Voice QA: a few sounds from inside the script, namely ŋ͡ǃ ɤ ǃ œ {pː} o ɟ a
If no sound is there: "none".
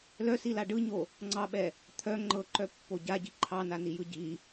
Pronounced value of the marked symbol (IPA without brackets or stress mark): pː